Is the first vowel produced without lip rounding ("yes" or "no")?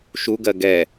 no